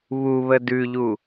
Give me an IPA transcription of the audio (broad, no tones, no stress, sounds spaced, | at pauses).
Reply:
β u β ə d ʉ ʎ u